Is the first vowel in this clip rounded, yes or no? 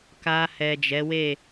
no